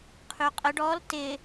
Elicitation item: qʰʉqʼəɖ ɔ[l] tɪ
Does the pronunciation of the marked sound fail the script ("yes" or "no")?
no